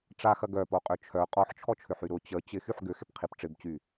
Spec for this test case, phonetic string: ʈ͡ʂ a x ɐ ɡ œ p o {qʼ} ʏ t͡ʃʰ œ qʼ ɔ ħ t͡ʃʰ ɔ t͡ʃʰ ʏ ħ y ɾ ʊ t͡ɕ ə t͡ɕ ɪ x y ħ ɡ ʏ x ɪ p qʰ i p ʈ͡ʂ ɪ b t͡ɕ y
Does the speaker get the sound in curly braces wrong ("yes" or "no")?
no